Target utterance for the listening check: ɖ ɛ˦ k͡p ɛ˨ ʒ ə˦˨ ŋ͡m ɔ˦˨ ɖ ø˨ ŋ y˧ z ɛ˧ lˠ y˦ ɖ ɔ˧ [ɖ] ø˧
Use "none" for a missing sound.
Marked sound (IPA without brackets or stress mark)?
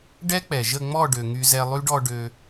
ɖ